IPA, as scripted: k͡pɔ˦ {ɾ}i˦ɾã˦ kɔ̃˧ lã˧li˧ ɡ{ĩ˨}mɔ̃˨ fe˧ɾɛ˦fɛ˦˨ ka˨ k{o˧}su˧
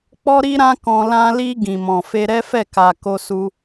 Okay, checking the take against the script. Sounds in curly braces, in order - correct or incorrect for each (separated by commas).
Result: correct, correct, correct